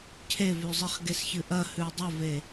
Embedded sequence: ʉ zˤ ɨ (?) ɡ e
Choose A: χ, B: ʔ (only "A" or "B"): A